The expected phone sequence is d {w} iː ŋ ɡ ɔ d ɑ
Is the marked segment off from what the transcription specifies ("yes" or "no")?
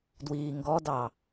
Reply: no